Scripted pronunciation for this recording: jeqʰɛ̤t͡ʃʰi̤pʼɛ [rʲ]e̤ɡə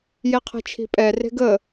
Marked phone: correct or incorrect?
incorrect